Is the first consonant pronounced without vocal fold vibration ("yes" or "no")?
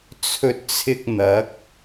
yes